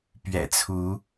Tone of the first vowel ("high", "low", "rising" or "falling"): low